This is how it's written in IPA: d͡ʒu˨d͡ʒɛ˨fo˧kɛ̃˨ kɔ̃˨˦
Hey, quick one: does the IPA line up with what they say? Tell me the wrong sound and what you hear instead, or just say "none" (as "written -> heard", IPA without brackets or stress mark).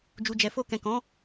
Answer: none